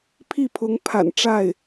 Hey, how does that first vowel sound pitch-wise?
falling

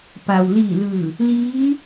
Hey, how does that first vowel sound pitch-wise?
low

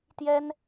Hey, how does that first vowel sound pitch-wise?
high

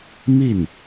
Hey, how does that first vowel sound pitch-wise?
falling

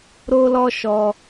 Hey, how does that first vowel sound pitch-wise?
high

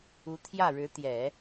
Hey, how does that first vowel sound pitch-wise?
rising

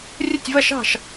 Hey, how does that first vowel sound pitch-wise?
falling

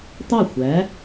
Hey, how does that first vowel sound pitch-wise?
falling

